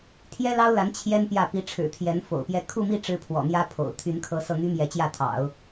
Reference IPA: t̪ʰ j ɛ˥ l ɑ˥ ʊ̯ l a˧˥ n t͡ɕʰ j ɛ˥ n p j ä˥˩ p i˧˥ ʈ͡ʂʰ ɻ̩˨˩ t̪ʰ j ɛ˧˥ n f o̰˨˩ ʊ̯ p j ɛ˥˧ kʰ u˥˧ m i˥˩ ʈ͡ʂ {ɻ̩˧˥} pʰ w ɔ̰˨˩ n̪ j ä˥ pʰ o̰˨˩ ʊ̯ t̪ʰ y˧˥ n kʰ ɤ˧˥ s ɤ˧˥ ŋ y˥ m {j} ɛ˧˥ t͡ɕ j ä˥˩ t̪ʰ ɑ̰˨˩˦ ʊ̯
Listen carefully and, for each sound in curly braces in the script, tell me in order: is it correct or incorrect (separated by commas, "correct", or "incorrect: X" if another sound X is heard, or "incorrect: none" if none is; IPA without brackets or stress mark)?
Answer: incorrect: ɻ̩˥, correct